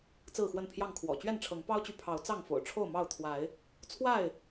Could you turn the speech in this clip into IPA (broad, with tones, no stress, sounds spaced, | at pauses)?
t͡s ɹ̩˥˨ x w ə˥˨ n pʰ j ɑ˥˨ ŋ kʰ w ɔ̰˨˩ t͡ɕ ɥ ɛ˥˨ n ʈ͡ʂʰ ɤ˨˦ ŋ p ɑ˦ ʊ̯ t͡ɕ y˨ pʰ ɑ˨˦ ʊ̯ t͡s ɑ˥˨ ŋ f o̰˨˩ ʊ̯ ʈ͡ʂʰ o˥˨ ʊ̯ m ɑ˥˨ ʊ̯ t̪ʰ w a˨˦ ɪ̯ | t͡sʰ w a˥˨ ɪ̯